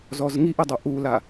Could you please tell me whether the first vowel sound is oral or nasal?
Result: oral